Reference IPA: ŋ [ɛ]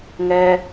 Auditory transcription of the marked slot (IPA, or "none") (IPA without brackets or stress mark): ɜ